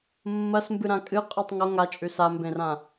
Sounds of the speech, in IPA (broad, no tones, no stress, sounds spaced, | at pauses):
mː ɐ s m b ɨ ɾ ã kʼ ɨ qʼ ɨ tˤ ŋ o ŋ a t͡ʃʼ ʉ s a m b ẽ r ã